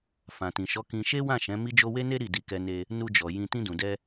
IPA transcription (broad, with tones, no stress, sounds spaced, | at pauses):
f ã˨ t ĩ˨ ʃ ɔ˨˦ k ĩ˧ ʃ e˦ w ã˦˨ ʃ ɛ̃˨˦ m i˦ d͡ʒ o˦ w e˦ n e˦ ɾ i˦˨ d i˧ k ɛ˧ n e˧ | n u˧ d͡ʒ ɔ˨ j ĩ˧ t ĩ˧ d ũ˨ d ɛ˧